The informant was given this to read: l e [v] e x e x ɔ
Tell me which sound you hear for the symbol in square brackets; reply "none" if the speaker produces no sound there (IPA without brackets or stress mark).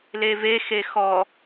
v